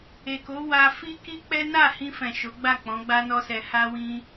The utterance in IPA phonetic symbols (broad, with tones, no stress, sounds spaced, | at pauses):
e˨ k o˨˦ w a˧ f i˦ k i˦ k͡p ɛ˦ n a˦˨ h ĩ˧ f ɛ̃˨ ʃ o˨˦ ɡ͡b a˦˨ k͡p ɔ̃˨˦ ɡ͡b a˦ n ɔ˦ s ɛ˧ h a˦ w ĩ˦